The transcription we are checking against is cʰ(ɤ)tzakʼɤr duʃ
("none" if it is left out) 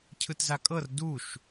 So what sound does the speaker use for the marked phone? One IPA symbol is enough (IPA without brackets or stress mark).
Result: ɯ